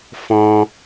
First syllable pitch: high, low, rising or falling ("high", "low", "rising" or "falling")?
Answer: high